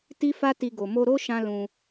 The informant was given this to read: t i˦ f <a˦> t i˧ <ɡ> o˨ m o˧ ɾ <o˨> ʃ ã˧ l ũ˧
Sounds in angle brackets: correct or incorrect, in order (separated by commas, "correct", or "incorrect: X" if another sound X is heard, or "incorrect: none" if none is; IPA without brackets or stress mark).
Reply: correct, correct, incorrect: o˦